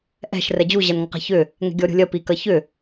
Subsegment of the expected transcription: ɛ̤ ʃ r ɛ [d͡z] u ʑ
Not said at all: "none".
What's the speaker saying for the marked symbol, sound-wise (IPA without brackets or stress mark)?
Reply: d͡ʑ